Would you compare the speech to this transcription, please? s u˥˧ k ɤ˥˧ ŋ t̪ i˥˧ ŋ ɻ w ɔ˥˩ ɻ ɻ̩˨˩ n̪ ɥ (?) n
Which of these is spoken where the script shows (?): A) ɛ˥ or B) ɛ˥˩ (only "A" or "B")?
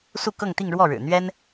A